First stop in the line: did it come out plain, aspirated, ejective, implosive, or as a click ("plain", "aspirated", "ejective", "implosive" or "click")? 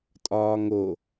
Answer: ejective